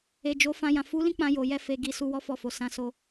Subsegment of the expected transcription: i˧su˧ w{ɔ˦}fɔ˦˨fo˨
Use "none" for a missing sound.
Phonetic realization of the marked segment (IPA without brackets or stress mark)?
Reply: ɔ˦